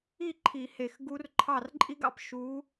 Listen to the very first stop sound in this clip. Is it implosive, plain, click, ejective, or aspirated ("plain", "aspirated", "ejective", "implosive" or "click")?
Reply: click